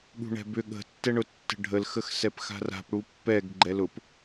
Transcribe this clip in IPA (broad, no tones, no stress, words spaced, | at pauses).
ɠṳɳɛ̤bʏ ɠə̤tːɛɳʊ tːə̤ɖʱəlxəx sɛpxa̤ra̤p ɽupːɛɡ ɡ͡ǃɛlʊp